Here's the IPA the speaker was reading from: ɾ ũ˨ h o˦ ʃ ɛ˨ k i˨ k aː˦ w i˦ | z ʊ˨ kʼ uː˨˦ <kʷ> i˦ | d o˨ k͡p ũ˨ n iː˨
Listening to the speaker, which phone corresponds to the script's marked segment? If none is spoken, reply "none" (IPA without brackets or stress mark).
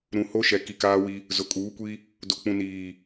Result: kʷ